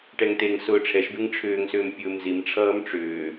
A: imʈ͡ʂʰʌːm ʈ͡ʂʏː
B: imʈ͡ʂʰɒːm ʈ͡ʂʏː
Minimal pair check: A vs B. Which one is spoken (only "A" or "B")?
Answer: A